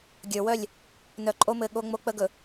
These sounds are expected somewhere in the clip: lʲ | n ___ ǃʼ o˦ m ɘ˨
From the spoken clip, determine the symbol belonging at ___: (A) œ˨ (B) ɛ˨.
A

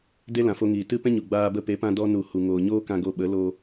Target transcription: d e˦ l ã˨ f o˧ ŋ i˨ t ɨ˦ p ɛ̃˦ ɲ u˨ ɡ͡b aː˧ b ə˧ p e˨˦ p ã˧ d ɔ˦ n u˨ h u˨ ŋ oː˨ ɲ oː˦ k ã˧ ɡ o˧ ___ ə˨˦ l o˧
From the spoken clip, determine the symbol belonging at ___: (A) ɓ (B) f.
A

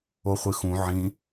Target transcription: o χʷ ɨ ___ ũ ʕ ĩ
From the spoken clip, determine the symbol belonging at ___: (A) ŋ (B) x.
B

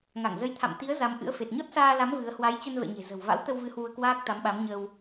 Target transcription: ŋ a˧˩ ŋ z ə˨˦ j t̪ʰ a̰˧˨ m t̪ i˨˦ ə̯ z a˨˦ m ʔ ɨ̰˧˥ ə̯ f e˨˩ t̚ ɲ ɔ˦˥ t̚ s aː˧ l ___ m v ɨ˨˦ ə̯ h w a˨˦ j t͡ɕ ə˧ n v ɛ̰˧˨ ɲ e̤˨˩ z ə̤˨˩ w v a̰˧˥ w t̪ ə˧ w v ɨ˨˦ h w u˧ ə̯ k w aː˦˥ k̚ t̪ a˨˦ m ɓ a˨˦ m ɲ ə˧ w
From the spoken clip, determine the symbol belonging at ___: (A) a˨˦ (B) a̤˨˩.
A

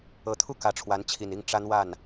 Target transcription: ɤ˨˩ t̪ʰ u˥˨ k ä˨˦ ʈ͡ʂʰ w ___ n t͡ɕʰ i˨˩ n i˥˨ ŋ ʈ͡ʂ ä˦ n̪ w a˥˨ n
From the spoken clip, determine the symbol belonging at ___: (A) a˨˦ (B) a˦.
A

